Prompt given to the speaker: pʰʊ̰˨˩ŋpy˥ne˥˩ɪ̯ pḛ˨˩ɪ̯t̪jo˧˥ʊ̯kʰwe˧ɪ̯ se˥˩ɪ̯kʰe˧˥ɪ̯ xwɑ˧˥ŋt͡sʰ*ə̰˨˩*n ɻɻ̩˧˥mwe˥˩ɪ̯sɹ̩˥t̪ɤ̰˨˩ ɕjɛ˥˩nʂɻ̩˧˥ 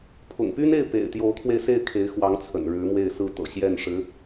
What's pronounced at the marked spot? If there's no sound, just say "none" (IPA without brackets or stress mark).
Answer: ə̰˨˩